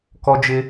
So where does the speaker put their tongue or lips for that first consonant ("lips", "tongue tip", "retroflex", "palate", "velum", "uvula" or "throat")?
velum